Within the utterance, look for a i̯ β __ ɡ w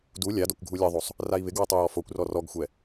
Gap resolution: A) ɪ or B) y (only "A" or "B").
A